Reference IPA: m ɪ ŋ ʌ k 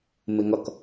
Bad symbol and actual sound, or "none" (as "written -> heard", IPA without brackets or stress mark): none